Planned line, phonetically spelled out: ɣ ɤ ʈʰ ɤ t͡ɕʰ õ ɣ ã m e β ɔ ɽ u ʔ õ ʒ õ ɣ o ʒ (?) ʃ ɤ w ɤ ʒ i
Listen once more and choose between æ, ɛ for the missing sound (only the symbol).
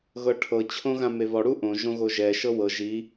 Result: ɛ